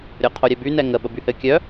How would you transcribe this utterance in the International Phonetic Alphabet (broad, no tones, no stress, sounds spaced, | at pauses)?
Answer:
ɾʲ o qʰ o ɾʲ ɛ b y n ɛ ŋ ə ɓ ə b y h ɘ kʲ œ